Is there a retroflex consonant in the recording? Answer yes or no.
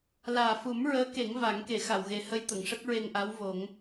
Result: yes